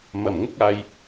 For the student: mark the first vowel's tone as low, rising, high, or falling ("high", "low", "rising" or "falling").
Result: low